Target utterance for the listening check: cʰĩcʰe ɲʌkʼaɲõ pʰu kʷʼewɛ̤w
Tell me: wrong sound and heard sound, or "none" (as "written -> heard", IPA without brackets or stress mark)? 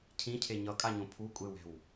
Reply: none